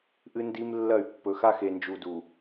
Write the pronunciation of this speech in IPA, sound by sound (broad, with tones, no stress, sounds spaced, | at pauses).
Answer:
ʔ ɨ˦ n d i˦ m lː ɐ˦˨ y̯ pː ɵ˨ x a˦ x e˨ n d͡ʒ u˨ d u˨